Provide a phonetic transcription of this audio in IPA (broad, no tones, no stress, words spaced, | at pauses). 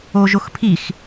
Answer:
oʒoxpʰix